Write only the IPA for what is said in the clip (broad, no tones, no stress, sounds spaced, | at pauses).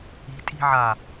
i̤ tʼ i̤ ʕ a